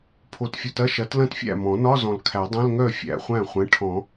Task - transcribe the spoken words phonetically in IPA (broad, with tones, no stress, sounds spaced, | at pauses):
pʰ o˨ t fʲ o˨ t ɐ˧˥˧ ʃ ɐ˩˥ t l ɐ̃˥˩ t fʲ æ̰˥˩ m ɔ̃˨˩˦ n ɒ˧˥˧ z ɔ̃˨ l kʰ æ˨˩˦ dˤ ɐ̃˧˥˧ l ŋ œ˥˩ fʲ æ̰˨ χʷ æ̃˥˩ χʷ ɛ̃˩˥ ʈʰ ɔ̃˨˩˦